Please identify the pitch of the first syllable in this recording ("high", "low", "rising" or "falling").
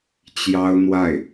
high